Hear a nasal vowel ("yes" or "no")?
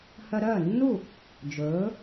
no